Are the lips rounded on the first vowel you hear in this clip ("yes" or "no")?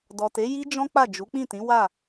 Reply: yes